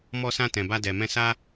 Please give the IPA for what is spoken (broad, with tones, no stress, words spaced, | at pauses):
mɔ˧sã˧ tɛ̃˨ba˧dɛ˨mɛ̃˧ sa˦